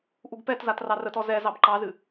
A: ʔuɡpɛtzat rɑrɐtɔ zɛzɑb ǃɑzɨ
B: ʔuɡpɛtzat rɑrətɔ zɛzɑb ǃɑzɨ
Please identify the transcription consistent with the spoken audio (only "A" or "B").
B